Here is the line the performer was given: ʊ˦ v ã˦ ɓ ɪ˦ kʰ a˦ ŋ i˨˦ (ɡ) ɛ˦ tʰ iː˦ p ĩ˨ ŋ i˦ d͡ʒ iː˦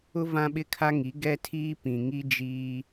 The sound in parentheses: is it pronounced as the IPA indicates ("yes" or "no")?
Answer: yes